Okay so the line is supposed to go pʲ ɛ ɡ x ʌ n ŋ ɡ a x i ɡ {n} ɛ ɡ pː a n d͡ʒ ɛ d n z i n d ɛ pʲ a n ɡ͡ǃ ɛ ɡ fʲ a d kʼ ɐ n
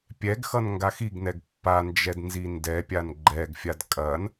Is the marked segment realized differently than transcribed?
no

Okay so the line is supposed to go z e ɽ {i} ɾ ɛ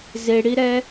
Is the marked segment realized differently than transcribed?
no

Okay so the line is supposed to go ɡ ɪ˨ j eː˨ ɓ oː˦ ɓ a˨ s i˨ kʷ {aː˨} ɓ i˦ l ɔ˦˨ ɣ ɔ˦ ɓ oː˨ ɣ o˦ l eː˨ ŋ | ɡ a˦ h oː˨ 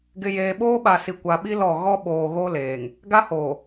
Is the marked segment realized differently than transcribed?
yes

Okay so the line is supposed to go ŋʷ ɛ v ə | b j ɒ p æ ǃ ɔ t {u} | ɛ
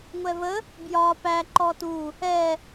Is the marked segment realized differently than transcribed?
no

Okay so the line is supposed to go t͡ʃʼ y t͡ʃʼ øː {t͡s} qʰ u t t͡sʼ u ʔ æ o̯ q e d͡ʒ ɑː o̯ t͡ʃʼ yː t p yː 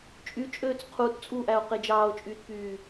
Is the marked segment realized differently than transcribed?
no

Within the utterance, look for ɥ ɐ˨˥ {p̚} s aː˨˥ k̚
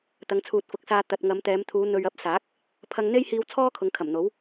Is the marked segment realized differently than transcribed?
no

